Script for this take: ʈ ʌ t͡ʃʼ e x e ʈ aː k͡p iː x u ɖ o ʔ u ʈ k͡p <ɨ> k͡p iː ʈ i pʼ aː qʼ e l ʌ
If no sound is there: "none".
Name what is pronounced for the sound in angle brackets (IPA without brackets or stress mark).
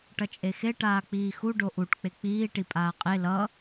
e